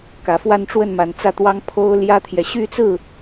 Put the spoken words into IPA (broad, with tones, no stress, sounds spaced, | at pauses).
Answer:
k ä˨˩ f w a˥˧ n ʈ͡ʂ w ə˥˩ n m a˨˩ n t͡s ä˥˩ t̪ w ɑ˥ ŋ pʰ o˥ ʊ̯ l j ä˥ t̪ʰ j ɛ˨ ɕ y˥˧ t͡s ɹ̩˥˩